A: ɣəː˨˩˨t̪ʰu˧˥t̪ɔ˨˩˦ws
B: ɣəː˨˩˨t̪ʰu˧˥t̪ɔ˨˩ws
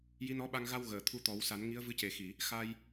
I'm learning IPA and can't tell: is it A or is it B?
A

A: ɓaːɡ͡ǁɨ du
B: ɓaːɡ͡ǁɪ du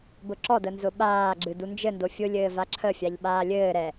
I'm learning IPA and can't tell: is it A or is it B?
A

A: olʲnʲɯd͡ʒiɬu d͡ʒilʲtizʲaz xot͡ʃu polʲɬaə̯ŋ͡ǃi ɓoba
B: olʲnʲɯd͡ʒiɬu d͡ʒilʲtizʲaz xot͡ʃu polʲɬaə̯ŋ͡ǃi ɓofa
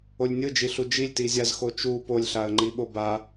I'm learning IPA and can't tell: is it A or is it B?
A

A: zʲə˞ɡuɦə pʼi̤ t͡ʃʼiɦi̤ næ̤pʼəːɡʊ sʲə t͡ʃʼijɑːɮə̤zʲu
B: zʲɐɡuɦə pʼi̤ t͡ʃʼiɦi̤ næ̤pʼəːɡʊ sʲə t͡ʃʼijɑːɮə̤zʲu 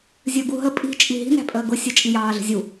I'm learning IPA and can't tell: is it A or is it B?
A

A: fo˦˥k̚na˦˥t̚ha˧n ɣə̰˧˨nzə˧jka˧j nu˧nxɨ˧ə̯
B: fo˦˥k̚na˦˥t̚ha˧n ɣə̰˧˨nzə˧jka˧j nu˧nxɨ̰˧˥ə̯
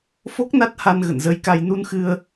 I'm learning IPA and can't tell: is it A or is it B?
A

